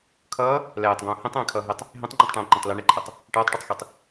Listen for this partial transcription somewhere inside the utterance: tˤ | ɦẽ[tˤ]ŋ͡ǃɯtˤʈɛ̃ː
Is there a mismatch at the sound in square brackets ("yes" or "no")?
no